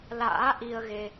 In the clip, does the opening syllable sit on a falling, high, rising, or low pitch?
rising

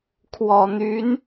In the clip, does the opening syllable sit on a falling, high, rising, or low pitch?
low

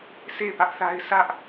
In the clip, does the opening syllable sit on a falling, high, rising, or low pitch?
falling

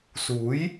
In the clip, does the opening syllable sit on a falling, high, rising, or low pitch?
rising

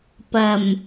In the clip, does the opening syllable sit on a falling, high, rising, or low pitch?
low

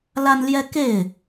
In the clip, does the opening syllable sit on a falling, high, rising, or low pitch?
high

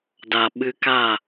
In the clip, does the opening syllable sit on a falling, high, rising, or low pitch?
low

